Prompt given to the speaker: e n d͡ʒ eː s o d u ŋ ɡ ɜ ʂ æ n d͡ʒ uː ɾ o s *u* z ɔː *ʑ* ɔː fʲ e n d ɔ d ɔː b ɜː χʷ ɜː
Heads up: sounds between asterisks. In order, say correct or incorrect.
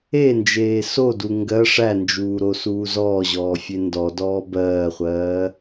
incorrect: uː, correct

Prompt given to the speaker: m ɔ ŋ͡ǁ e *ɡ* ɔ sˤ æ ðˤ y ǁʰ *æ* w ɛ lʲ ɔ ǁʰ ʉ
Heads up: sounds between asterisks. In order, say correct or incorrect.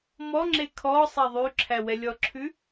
incorrect: kʰ, correct

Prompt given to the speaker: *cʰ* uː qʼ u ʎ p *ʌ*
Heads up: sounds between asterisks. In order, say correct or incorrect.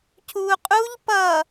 correct, correct

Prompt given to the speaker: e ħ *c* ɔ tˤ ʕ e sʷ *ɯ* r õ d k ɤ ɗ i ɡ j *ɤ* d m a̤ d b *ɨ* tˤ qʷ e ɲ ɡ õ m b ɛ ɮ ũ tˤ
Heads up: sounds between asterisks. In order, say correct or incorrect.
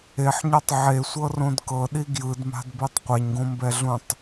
incorrect: ɲ, incorrect: ɤ, incorrect: ɯ, incorrect: i

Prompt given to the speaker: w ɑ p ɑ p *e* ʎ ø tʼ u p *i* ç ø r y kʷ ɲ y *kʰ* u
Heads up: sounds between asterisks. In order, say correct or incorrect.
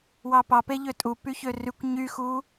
correct, incorrect: y, incorrect: x

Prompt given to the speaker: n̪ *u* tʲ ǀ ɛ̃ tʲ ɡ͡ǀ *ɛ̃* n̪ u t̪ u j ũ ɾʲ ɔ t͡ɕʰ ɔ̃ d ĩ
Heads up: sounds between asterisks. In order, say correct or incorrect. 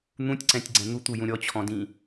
incorrect: ũ, correct

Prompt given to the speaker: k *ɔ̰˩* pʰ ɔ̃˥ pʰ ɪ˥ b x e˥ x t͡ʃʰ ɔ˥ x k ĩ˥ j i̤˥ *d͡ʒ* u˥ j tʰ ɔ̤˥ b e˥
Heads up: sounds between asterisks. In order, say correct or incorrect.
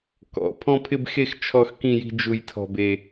correct, correct

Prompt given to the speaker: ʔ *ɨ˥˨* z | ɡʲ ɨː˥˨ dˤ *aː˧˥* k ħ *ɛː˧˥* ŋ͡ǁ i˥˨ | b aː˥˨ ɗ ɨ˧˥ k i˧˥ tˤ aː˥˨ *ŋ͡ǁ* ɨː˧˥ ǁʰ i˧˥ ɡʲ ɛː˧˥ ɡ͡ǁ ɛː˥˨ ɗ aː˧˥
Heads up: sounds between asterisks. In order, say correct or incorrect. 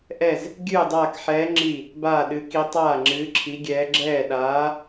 incorrect: ɛ˥˨, incorrect: aː˥˨, correct, correct

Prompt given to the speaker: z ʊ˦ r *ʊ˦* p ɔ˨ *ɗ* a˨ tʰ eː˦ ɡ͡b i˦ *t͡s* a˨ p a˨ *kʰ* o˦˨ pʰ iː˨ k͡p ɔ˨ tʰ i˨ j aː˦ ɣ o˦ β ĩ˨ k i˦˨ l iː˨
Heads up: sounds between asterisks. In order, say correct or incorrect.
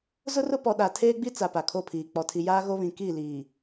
correct, correct, correct, correct

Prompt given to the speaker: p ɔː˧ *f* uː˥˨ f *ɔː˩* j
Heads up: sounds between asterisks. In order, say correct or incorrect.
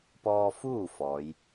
correct, incorrect: ɔː˧˥

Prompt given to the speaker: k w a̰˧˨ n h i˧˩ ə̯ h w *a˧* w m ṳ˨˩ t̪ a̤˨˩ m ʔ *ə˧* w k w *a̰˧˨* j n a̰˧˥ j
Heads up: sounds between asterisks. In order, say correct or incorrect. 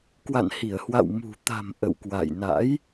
incorrect: a̰˧˨, incorrect: ə̰˧˨, correct

